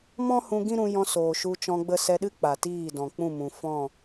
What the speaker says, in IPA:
m ɔ̃˦ h ũ˧ ɡ ĩ˦ ɾ ũ˧ j ɔ̃˧ s oː˨ ʃ u˧ t͡ʃ ɔ̃˧ ɡ͡b ə˧ s ɛ˧ ɗ ɨ˦ k͡p a˨ t iː˦˨ d ɔ̃˨ k͡p ũ˦˨ m ũ˨ f ɔ̃˦˨

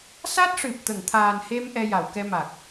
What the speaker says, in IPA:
s a˦˥ t̚ ʂ ɨ˨˩ p̚ t̪ ə˨˩˨ ŋ t̪ʰ aː˨˩ n h e˧ m ʔ ɛ˧ j a˨˩˨ w k ɛ˧ m a˨˩ k̚

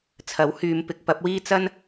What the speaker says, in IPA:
t͡sʰ ɐ˨˥ w h yː˨˧ m p ɪ˨˥ k̚ p ɐ˨˥ p̚ w iː˥ t͡s ɐ˥ n

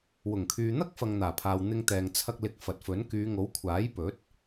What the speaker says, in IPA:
w ʊ˨˩ ŋ kʰ yː˨ n̪ ɐ˥ k̚ f ɐ˨ ŋ n̪ aː˨˩ pʰ aː˨ w n̪ ɪ˧ ŋ t̪ ɛː˨ ŋ t͡sʰ ɐ˧ k̚ l ɪ˨˥ k̚ f ɐ˨ t̚ f ɵ˨˥ n k yː˨˧ ŋ o˨˥ w kʷʰ aː˨˥ j p ɵ˨˥ t̚

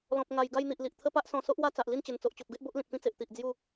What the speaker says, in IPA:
l ɔ̃˨ p̚ ŋ a˨˩ j ɡ a˥˧ j n̪ i˨ ʔ l i˨ ʔ t̪ʰ ə˦ p a˦ ʔ s ɔ̃˧ s o˦ ʔ w a˥˧ t͡s a˨ ʔ l i˥˧ n t͡ɕ ə˨˩ n t͡s o˨ ʔ t͡ɕ o˨ p̚ ɡ e˦ ʔ b o˦ ʔ l ĩ˨ t̚ p ĩ˦ t͡s e˨ ʔ t̪ i˨ ʔ d͡z j u˥˧

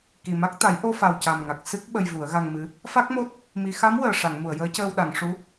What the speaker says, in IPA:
k i˨˩ m a˦˥ k̚ t̪ a˨˩˦ j ʔ o˧ f a˨˩ w c a˨˩ m ŋ a˨˩ k̚ s ɨ˦˥ k̚ ɓ ə˧ j v u˨˩˦ ə̯ ɣ a˧ ŋ m ɨ˧˥ | f a˦˥ k̚ m o˦˥ t̚ | m i˨˩˨ x a˧˥ m w əː˨˩ ʂ a˨˩˨ ŋ m u˨˩˨ ə̯ j əː˧˥ c əː˧ w ɗ a˨˩˨ ŋ ʂ u˧˥

